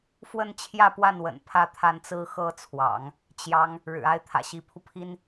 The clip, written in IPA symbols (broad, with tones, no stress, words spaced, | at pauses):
fwə˥˧nt͡ɕʰjä˥˧pwa˥˩nwə̰˨˩n pʰä˥˧t̪ʰa˥˩nt͡sɹ̩˥ xɤ˥˩t͡sʰwɑ̰˨˩˦ŋ | t͡ɕjɑ˥ŋ | ɻɻ̩˨˩a˥˩ɪ̯ t̪ʰä̰˨˩ɕi˧˥pʰu˧ pʰi˥n